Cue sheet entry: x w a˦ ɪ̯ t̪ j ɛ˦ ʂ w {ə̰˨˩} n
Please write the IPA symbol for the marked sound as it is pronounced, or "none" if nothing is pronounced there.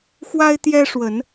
ə˨˦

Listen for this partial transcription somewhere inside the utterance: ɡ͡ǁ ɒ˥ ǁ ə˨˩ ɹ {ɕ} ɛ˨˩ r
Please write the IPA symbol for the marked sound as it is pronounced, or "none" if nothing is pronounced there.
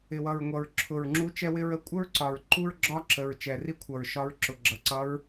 t͡ʃ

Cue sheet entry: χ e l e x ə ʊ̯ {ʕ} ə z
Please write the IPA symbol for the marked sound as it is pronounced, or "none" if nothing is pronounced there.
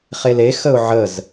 ʕ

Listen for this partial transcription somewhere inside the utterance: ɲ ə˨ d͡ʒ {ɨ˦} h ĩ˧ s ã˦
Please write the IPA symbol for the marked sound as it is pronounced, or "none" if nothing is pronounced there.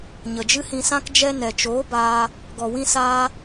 ɨ˦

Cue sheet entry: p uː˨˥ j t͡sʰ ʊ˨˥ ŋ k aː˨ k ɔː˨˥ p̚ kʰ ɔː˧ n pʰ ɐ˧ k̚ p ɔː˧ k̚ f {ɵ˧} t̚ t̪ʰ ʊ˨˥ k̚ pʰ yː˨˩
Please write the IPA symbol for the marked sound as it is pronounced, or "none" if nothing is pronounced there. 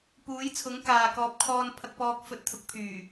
ɵ˧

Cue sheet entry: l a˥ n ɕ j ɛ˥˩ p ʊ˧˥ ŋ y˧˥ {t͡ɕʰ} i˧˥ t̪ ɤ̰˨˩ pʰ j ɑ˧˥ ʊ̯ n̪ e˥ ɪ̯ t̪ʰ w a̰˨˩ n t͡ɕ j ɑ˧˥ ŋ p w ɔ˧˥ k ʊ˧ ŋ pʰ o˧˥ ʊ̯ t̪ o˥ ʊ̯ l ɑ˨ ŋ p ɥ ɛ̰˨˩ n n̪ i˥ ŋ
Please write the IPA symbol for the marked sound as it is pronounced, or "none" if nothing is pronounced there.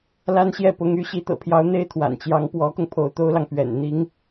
ɕ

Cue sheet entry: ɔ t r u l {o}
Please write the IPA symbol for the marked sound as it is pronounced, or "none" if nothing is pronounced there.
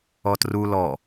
ɔ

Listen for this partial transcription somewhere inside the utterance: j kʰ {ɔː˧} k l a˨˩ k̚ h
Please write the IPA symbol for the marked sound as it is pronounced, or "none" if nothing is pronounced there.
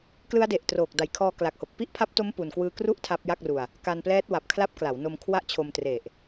ɔː˧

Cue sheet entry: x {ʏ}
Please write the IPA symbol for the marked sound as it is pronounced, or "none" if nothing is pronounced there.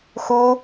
u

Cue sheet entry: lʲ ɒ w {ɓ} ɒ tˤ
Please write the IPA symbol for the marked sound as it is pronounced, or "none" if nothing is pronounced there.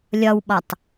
ɓ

